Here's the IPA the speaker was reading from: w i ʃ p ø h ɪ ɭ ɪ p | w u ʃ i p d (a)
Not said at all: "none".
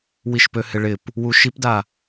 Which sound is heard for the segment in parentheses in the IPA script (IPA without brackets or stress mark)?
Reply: a